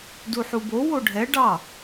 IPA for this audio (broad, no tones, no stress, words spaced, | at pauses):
duħubo woɖʱɛ ɖɑ